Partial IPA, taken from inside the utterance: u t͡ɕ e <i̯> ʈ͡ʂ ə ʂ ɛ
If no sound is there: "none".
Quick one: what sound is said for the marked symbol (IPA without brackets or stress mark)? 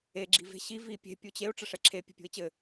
u̯